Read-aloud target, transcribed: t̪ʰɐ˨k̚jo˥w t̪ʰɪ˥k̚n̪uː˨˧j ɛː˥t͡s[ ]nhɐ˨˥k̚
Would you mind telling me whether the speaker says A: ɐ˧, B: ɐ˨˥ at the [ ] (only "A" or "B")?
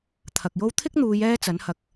B